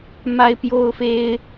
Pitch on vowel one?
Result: high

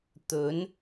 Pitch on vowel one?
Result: rising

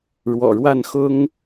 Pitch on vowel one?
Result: low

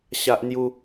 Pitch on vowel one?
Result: high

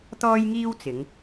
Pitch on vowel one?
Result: high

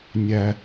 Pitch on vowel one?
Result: high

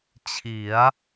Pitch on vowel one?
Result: rising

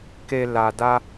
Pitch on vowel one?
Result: low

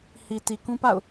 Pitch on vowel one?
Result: low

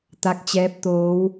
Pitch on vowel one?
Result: rising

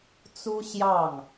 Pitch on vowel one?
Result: high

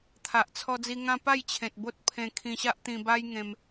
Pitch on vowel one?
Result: low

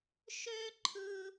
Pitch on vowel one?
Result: high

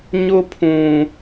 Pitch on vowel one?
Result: high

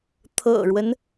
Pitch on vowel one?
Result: low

